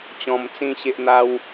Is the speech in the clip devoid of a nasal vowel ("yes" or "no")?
no